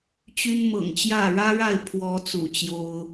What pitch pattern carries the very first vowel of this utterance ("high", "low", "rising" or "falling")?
high